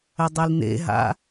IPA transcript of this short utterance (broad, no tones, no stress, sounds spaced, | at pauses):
ɘ dˤ i l n̪ ḛ ɦ a̰